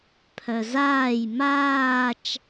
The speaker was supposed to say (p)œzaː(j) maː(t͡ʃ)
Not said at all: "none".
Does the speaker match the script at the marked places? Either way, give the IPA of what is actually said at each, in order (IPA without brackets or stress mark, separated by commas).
pʰ, j, t͡ʃ